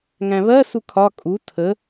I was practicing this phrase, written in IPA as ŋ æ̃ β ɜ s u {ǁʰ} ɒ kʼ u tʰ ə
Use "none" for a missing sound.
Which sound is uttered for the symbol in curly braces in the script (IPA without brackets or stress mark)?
kʰ